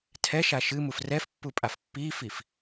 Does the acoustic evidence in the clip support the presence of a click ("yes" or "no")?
no